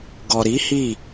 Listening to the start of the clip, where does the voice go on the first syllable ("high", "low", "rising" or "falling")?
low